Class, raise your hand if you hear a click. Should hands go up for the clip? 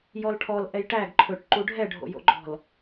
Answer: yes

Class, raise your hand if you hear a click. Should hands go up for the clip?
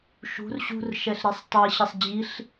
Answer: no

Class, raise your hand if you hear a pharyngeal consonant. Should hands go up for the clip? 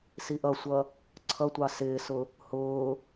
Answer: no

